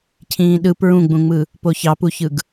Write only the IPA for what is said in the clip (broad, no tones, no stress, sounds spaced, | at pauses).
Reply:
cʰ ĩː ɗ ɯ p ɹ ũ ɡ͡b ũ ŋ͡m ɯ | p o ç ɑ p u ç ɯ ɡ